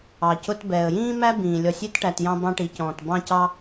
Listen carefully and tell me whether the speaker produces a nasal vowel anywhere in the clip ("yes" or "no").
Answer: yes